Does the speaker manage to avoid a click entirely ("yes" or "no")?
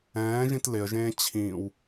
yes